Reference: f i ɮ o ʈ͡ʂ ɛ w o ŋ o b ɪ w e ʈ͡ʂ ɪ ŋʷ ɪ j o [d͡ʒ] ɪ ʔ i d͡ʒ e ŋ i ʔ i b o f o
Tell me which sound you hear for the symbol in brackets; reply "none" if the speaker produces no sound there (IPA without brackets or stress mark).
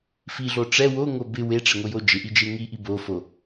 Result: d͡ʒ